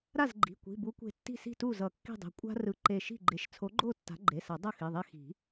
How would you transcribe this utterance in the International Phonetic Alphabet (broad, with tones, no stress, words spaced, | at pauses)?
ɾa˥˩zɡ͡ǃi̤˩˧˩kʷi̤˩˧˩bu˨˥ kʷe̤˧˩tːi̤˥˩si̤˥˩tu˥˩ zʌ˨˩˦kːi̤˥˩dˤe̤˩˧˩ kʷʼa̤˦ rɯ˧˩ǃe˧˩ʃi̤˥˩ɡ͡ǃe˨˥ʃ t͡sʰo˨˥ɡ͡ǃo˥˩ tːa̤˨˥ɡ͡ǃe˩˧˩sa˨˩˦ dˤʌ˥˩xi˩˧˩ðˤe˦ xi̤˨˩˦